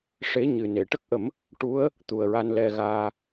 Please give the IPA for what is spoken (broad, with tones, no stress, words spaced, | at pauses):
ʂe˧˥ ɲɨ˨˩ ne˨˩˨ʈə˦˥k̚ʔə˨˩˦m | ʈu˧˥ə̯ | t̪u˨˩ə̯ɹa˧n lɛ˧ɣaː˧